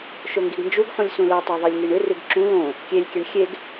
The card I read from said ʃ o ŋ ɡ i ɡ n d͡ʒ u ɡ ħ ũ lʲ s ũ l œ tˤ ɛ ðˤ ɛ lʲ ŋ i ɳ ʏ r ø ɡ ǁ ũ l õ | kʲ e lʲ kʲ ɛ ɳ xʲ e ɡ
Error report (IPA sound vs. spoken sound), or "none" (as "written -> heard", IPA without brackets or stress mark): ø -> ʉ